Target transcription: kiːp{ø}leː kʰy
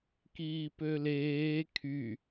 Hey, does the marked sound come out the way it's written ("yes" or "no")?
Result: yes